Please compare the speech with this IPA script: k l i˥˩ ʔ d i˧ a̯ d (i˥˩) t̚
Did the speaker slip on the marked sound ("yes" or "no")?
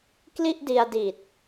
yes